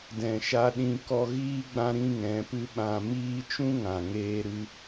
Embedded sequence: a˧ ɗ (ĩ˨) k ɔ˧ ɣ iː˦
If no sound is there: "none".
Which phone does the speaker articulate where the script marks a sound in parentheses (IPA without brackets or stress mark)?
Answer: ĩ˧